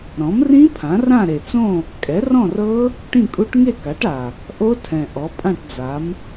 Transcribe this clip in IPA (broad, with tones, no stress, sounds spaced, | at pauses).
ɾ ɔ̃˩˥ m r ĩ˦˥ pʰ ã˩˥ r ã˥˨ ɾ e˨˩ t͡s õ˥˨ | kʼ ɛ˩˥ r ɔ̃˥˨ r ɤ˦˥ | ʈ ĩ˥˨ kʼ u˦˥ ʈ ŋ e˥˨ k a˩˥ ʈ a˨˩ | ʔ o˦˥ tʰ ɛ̃˨˩ ʔ ɔ˩˥ pʼ ã˥˨ ʈ d͡z a˩˥ m